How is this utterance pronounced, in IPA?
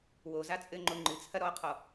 w o z a t͡sʼ ɘ ŋ͡ǃ o ŋ͡ǃ ɨ t͡sʰ ɐ ɾ ɔ qʰ ɔ

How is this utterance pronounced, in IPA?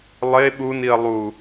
lˠ e ɓ u n i ɐ̯ lˠ u

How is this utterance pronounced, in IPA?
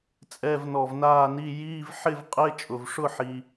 t͡sʼ ɛ˧˥˧ v n ɔ˧˩ v n aː˥˧ n i˧˥˧ j iː˧˥˧ v ħ ɪ˥˧ v qʼ ɪ˧˥˧ t͡ʃʼ ʊ˩ v ʂ ʊ˥˧ ħ i˩

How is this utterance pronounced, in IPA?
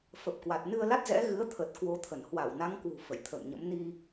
f ə˨˩ p̚ k w a˨˩ t̚ n ɨ˧ ə̯ l a˦˥ t̚ z ɛ̰˧˥ ɣ ɨ˨˦ ə̯ t̪ʰ ə˨˩ t̚ k w o˧ t̪ʰ ə˧˩ n h w a˧˩ w n a˨˦ ŋ k w ṳ˨˩ f ə̰˧˨ j t̪ʰ ə̰ː˧˨ ŋ ɲ ə̰˧˥ m n i˧

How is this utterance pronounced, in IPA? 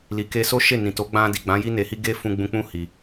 l i˨ k e˧ s o˦ ʃ e˦˨ n ĩ˨ t o˨˦ ɡ͡b ã˧ d i˨ ɡ͡b ã˨˦ j i˦ n e˧ h i˦ ɡ e˦ f ũ˧ ɡ͡b ũ˧ k͡p ũ˦ h i˧

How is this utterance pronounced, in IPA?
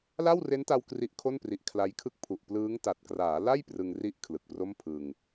l a˥˩ w r e˦˥ n t a˧ w k r i˦˥ ʔ kʰ o˥˩ n p r i˨˩ ʔ kʰ l a˦˥ j kʰ ɯ˥˩ k̚ pʰ u˨˩ ʔ p l ɯː˦˥ ŋ t a˨˩ t̚ k r aː˩˦ l a˥˩ j p r ɯ˧ ŋ r i˥˩ ʔ kʰ l ɯ˨˩ k̚ p r o˥˩ m pʰ ɯ˧ ŋ

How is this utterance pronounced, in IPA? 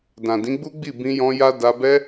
d ã˨ d ĩ˨˦ ɡ͡b u˦ ɡ͡b i˦˨ b ĩ˧ j ɔ̃˧ j a˦ d a˧ b ɛ˦

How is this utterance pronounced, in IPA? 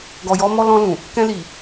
ɡ ɔ˨ j ɔ˧ m ɔ˧ l ɔ̃˧ l ũ˨ | k ɛ̃˧ l i˨

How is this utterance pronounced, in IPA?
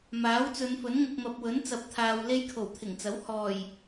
m aː˨˥ w t͡s ɵ˨˧ n f ɵ˨˥ n ŋ ʊ˨ k̚ m ɐ˨ p̚ w ɵ˨˥ n t͡s ɐ˨˥ p̚ t̪ʰ aː˨ w l e˥ j kʰ o˨˩ w t̪ʰ ɪ˨˩ ŋ t͡s ɐ˨˥ w h ɔː˨˩ j

